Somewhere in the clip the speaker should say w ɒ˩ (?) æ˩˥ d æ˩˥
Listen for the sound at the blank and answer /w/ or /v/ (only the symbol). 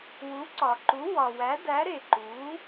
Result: w